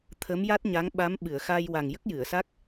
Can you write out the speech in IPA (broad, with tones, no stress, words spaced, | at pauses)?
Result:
t̪ʰə˧˥mja˦˥t̚ɲa˧˥ŋ ɓa˧˥mɓɨ˨˩˨ə̯xa˧j wa˨˩ŋjə˦˥k̚jɨ˨˩˨ə̯sa˦˥k̚